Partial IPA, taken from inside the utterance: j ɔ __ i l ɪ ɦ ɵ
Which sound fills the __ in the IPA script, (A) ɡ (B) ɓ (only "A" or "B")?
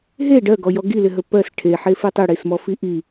A